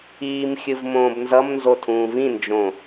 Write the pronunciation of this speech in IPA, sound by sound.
iː m xʲ ɯ v m õː b n z ʌ m n z o tʰ ũː v ĩ n d͡ʒ õ

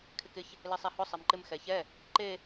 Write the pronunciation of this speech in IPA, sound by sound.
kʰ ɪ k ɪ ç | l e sˤ ɛ h ʊ sˤ e m ǃ ɪ m x ɛ ç ɛ | ǃ e

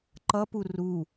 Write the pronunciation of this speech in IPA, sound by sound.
ǃ ʌ p u r u

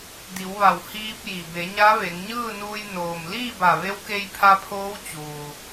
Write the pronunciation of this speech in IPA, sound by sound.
d i˩˧ w ʋ a˧˩ w h iː˧ p̚ j i˩ b e˩˧ ɲ a˧˥ ʋ e˩˧ ŋ ɲ ɯː˥˨ n uː˧ j n oː˩ m l iː˥˨ b a˧˩ ʋ e˧˥ w k e˧ j pʰ a˧ pʰ oː˧˥ w t͡ɕ uː˩

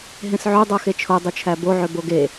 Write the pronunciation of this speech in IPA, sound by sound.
ɦ ẽ s ʕ ø dˤ o x e t͡ʃʰ o dˤ u t͡ʃʰ æ b o ʕ ø b o ɡ e

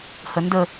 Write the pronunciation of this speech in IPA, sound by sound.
h ə n d ə

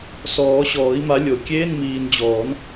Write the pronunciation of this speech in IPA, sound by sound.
s ɔː˨˩˦ ɕ ɔː˨˩˦ i̯ m a˨˦ lʲ o˨˩˦ kʲ eː˧˥˧ n m iː˨ n d͡ʑ ɔː˨˩˦ n

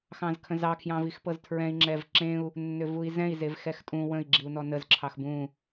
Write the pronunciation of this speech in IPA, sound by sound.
x ɑ̃ z kʰ ə̃ z ɑ kʰ j ɑ̃ v i x p ɤ z tʰ ɹ ɛ̃ i̯ ŋ͡ǁ ɛ v ǁ ẽ u̯ | nː ʏ v u i̯ z ɛ̃ i̯ z e v x ɛ x tʼ ũ w ə̃ i̯ ɡ͡ǁ i u̯ n ɔ n ə z ǁʰ ɑ x b ũ

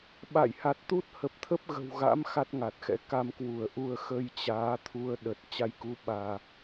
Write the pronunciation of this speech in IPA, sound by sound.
ɓ a̰˧˨ j h a˨˩ t̚ t̪ u˦˥ t̚ h ə˨˩ p̚ t̪ʰ ə˦˥ p̚ ɣ ə̤˨˩ w ɣ a̰˧˥ m x a˦˥ t̚ ŋ a˨˩ t̚ x ɛ̰˧˥ k a˧ m k w u˧˩ ə̯ ʔ u˧ ə̯ x ə˧ j t͡ɕ aː˨˦ t̪ʰ u˧ ə̯ ɗ ə˨˩ t̚ t͡ɕ a˧ j k u˨˦ ɓ aː˧

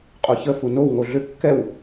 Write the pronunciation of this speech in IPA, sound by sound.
qʼ o ç ə f u n o w ŋ o ɮ ʏ kː ɛ w

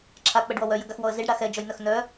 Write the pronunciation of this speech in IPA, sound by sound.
ǁʰ a k͡p ə ɖ w ɔ w œ j ə ɡ a x w ɔ ə̯ z i ɖ ɽ a x ɛ d͡ʒ ɔ j n œ x n œ

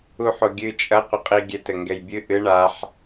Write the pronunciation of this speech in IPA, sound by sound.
u ħ o ɡʲ ɨ t͡ʃʼ ɐ qʷ ɘ qʼ i ɡʲ ɛ t ɘ ŋ ɡ ɛ j bʲ ɨ ʔ ɨ ɳ a ħ

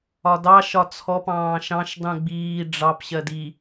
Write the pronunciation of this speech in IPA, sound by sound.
ɒ d ɑ ʃ ɒ t͡sʰ ɔ p ɑ̃ː ʃ ɑ̃ ʃ dˤ ũ ɡ͡b iː ɖ͡ʐ ɑ p ɕ ɜ d i

